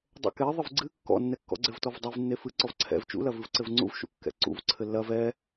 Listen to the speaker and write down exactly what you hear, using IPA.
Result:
dˤ ɛ̰ k ɛ ðˤ ɨ v ɡ͡ǀ ɨ kː ɔ̰ nː ɛ kː ɔ̰ ɡ͡ǀ ɘ v t ɔ v dˤ e v nː e f ɨ ǀ ɔ v ǀʰ ɛ̰ v t͡ʃ ṵ l ɐ v ɨ v ǀ ɘ v ŋ͡ǀ ṵ v ʃ ṵ kː ɛ̰ ǀ ṵ v ǀʰ ɘ lː ɐ v ɛ

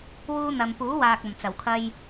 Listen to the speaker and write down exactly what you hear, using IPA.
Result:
w uː˥ n̪ ɐ˨ m p uː˨˥ w aː˨ k̚ ɐ˨˩ m t͡s ɐ˨˩ w kʰ ɐ˧ j

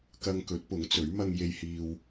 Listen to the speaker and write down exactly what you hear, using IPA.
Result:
k ɐ˧ ŋ k ɵ˨˥ t̚ p ʊ˨˥ ŋ t͡s ɵ˨˥ ɥ m ɐ˧ ŋ j e˧ j h iː˧ w

